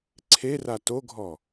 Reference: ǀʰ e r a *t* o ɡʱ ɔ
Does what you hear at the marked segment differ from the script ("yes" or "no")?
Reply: no